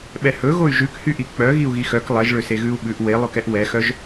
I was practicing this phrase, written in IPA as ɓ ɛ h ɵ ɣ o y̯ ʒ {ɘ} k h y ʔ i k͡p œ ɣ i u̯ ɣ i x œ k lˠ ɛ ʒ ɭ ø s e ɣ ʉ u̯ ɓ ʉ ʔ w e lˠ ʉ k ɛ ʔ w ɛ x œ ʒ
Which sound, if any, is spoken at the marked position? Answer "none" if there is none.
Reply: ʉ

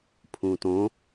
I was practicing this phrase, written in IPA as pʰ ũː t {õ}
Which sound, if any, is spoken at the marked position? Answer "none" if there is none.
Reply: õ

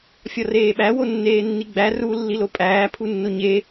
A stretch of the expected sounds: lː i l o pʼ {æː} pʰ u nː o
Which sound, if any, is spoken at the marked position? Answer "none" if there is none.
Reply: æː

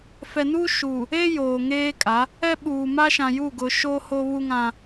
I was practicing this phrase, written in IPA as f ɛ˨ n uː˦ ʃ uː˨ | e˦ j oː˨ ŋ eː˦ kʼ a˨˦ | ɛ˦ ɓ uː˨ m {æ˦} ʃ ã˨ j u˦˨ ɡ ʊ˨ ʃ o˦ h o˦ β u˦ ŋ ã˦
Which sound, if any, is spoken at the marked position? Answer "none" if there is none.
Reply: a˦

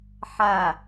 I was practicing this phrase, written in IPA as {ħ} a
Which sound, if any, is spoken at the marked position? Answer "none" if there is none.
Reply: ħ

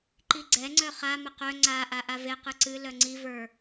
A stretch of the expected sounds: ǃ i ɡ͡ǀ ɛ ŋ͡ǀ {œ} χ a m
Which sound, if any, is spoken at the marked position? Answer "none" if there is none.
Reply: œ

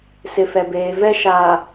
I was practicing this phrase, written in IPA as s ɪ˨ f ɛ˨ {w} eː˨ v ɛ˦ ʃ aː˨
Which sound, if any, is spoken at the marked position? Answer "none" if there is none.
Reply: b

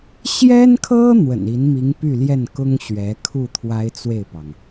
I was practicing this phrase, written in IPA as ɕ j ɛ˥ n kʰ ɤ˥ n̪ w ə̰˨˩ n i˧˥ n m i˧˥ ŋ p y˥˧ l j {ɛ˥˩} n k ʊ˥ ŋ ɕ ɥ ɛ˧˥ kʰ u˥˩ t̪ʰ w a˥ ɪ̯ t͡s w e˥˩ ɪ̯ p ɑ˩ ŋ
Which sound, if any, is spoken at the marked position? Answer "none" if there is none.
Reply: ɛ˥˩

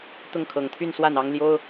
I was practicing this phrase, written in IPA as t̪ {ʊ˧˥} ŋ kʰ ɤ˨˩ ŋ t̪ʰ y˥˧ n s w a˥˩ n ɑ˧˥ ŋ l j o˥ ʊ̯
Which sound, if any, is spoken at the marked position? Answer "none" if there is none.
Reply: ʊ˥˩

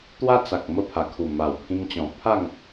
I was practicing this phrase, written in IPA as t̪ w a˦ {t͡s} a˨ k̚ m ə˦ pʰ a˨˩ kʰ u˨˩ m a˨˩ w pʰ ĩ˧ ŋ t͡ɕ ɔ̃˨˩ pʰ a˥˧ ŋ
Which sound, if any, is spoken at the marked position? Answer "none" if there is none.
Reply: t͡s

